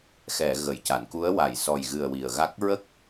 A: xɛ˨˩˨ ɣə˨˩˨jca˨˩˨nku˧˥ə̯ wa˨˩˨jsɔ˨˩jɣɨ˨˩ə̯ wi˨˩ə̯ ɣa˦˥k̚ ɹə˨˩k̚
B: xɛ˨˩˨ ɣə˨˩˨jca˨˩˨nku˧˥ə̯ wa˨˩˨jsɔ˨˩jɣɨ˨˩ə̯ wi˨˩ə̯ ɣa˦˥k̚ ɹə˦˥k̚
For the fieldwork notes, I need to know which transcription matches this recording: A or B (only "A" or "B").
B